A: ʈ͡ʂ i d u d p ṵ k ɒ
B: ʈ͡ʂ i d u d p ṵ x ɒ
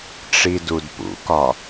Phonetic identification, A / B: A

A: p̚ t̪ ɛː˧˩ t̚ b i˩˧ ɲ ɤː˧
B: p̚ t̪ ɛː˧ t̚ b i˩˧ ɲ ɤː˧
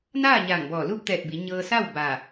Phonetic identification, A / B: A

